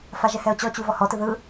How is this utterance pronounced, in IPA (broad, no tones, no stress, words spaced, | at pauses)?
faʒɛhɛo̯t͡ɕɔ t͡ɕuvɔhɔ tɯðɯ